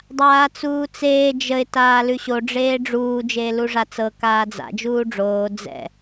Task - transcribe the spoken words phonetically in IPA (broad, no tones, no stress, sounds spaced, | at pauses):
dˤ aː t͡s uː t͡s eː d͡ʒ ə ɪ̯ t aː l ʉ ɕ o ɖ͡ʐ eː ɖ͡ʐ uː d͡ʒ eː l u ʐ a t͡s ɤ k aː d͡z a̰ d͡ʒ uː ɖ͡ʐ oː d͡z ɛ̰